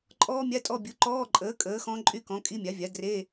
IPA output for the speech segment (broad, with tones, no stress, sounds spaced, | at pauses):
ǃʼ ɔː˦˥ mʲ a˧˥˧ tʼ ɔ˧˥˧ bʲ u˩˥ ǃ ɔː˧˥˧ ǃʼ əː˩˥ kʼ əː˩˥ x ɔ̃˦˥ ǃʼ y˧˥˧ k ɔ̃˩˥ kʼ i˦˥ mʲ a˩˥ vʲ a˩˥ d r e˧˥˧